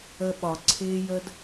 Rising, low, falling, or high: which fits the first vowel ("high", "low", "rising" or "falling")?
high